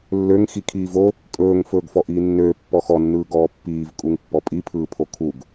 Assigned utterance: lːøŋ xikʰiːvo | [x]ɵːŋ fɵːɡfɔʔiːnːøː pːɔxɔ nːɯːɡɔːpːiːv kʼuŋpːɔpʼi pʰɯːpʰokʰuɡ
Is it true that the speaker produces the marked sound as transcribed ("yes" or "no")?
no